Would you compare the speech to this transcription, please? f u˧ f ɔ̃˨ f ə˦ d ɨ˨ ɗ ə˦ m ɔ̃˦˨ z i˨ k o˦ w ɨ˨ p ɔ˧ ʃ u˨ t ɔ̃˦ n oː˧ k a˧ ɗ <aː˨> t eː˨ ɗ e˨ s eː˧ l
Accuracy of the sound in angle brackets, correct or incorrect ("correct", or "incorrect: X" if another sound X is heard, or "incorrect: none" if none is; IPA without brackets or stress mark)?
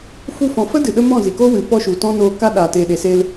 correct